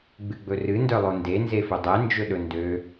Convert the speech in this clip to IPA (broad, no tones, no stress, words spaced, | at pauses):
ɡ͡bɨɡ͡bɵrɨ ndœlˠonde nzefɵdˤɛ nd͡ʒɵɗɵndø